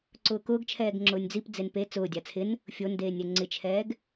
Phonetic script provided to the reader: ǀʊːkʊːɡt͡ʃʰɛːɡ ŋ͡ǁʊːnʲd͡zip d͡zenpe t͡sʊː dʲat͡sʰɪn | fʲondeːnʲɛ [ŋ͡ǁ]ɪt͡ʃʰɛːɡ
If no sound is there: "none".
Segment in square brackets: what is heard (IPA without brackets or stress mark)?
ŋ͡ǀ